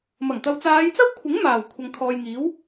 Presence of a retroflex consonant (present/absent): absent